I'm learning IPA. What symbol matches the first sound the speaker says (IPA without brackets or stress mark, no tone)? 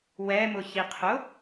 w